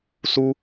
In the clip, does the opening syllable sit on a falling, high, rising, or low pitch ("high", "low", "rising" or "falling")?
high